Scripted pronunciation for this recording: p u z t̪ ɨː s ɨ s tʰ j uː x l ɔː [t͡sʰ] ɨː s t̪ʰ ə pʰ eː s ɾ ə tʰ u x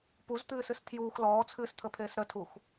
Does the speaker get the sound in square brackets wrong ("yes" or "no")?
no